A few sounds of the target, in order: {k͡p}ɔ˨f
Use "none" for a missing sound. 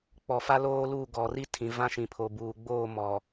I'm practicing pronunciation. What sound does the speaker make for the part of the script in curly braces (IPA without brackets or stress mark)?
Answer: k͡p